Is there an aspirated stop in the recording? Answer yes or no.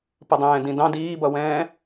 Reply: no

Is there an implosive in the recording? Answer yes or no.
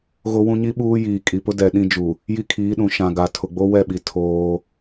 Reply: yes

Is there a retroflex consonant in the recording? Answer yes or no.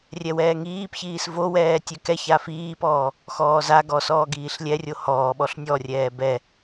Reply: no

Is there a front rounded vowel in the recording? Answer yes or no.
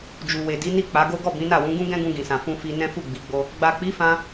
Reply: no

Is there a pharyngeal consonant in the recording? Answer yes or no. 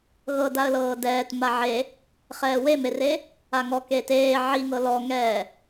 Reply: yes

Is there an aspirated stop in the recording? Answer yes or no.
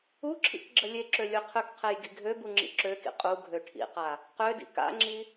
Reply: yes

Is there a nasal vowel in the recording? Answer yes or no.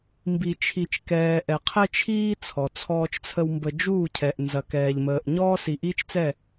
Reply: no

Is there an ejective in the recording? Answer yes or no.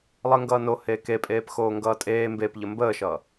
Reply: yes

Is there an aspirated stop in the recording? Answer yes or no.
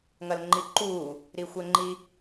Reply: no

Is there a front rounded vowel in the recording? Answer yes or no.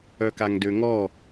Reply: yes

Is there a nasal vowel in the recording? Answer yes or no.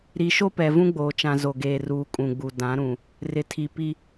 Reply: yes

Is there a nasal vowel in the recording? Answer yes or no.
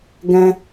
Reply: yes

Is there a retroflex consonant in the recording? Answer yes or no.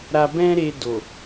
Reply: no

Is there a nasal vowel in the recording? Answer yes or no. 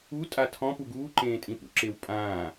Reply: yes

